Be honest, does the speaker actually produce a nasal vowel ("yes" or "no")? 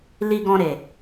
yes